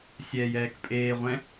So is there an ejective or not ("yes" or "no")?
yes